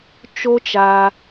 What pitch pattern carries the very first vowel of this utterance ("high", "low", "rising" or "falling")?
high